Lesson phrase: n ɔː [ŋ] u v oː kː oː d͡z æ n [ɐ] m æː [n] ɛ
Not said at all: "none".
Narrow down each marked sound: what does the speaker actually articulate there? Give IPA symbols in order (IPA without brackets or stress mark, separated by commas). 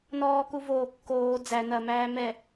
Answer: k, ɐ, m